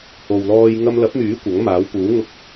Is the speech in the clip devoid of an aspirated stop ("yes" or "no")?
yes